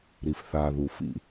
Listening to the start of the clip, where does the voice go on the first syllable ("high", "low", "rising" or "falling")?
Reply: low